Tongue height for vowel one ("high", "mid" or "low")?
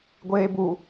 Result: mid